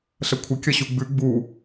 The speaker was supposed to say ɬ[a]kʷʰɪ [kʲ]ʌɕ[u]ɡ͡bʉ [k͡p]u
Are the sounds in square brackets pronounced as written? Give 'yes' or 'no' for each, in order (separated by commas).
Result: no, yes, yes, no